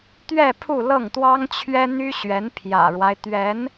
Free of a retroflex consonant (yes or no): no